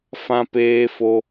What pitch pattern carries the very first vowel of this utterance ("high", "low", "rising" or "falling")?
high